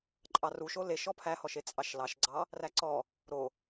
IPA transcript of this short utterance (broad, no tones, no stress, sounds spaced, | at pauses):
ǃʼ ɑ r u ʃ o l e ʃ ɔ pʰ æ h ɔ ʃ e t͡sʼ ɑ ʃ l ɑ ʃ ɡ͡ǀ ɑ | r æ ǀ ɔ | ɾ o